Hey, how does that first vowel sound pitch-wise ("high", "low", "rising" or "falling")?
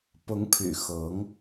rising